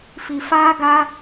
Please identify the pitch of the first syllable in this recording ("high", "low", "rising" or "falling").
low